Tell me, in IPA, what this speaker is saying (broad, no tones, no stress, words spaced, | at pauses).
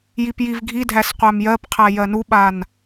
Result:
jipjivɡʱidʱæs qʷæmjɜpqʰæ jɜnuɓan